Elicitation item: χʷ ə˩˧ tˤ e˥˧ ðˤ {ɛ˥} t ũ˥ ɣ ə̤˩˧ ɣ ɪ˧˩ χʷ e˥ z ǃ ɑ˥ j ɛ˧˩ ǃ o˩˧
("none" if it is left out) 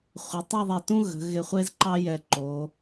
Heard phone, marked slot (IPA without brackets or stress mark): ɛ˧˩